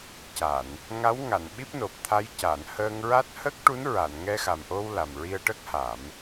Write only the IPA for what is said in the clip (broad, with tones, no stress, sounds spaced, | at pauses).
c a˨˩˨ n | ŋ a˧˥ w ŋ a˨˩˨ n ɓ i˦˥ p̚ n o˨˩ p̚ t̪ʰ a˧˥ j c a˨˩˨ n h əː˧ ŋ ɹ a˦˥ t̚ h ə˦˥ k̚ ʈ u˧˥ n ɹ a˨˩˨ n ŋ ɛ˧ x a˨˩ m ʔ o˧ w l a˨˩ m ɹ i˧ ə̯ ʈ ə˦˥ k̚ h a˨˩˦ m